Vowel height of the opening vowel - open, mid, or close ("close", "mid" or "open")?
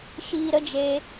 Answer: close